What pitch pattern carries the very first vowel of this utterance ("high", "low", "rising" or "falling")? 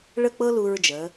falling